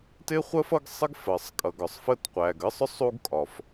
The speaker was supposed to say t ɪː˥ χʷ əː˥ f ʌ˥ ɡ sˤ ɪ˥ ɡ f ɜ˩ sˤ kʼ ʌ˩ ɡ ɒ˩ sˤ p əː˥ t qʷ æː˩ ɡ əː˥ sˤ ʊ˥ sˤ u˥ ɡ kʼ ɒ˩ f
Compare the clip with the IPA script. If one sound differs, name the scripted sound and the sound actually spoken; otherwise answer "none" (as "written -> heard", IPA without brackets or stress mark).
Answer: p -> f